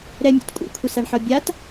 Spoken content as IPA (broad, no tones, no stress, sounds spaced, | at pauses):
ɾ ɛ mʲ o̰ t kʷʼ ḭ kʷʰ ɪ s a ɳ ħ ɔ bʲ a t